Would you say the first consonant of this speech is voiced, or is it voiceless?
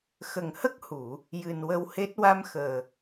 voiceless